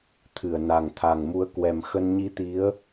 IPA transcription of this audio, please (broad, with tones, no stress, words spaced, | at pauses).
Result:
t̪ʰɨ˧˩ə̯na˨˩ŋt̪ʰa˨˩ŋmu˨˦ə̯ kwɛ˨˩mxə˧n ɲi˧t̪i˨˦ə̯